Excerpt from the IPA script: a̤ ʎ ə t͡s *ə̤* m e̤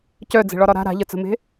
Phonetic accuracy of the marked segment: correct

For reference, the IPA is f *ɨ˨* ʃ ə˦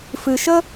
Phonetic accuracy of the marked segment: correct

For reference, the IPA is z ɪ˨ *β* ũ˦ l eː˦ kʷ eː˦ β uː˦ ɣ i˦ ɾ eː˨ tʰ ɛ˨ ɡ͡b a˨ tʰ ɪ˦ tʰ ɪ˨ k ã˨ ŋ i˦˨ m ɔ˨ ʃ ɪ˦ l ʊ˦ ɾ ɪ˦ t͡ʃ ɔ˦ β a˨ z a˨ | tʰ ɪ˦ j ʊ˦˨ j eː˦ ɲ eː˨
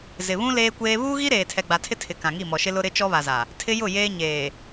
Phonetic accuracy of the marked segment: correct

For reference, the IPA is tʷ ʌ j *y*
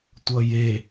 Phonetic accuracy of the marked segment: incorrect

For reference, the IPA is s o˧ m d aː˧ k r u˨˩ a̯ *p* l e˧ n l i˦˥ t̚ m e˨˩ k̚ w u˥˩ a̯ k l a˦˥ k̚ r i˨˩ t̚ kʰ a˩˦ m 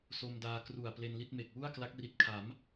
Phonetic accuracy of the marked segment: correct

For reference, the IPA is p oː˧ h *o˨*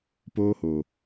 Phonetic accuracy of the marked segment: correct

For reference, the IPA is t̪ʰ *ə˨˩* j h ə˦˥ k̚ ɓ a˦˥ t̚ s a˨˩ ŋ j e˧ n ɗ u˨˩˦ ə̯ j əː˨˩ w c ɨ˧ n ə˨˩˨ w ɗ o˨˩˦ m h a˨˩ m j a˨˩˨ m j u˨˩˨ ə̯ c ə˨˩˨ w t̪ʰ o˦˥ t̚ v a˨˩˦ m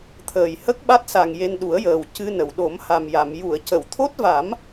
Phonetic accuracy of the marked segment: incorrect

